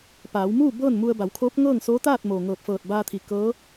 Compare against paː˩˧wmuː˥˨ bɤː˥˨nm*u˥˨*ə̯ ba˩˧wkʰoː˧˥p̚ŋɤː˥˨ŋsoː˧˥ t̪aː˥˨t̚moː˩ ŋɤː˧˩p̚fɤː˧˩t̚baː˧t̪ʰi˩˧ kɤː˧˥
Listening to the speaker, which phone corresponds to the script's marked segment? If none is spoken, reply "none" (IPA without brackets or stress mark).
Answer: u˧